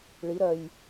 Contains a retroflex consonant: yes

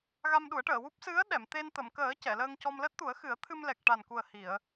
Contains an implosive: yes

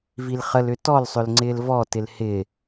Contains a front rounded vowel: yes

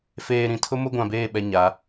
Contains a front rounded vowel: no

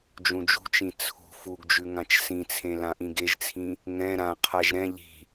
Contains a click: no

